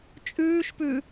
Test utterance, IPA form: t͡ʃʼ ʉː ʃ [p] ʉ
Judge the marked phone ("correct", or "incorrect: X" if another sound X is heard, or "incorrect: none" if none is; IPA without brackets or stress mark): correct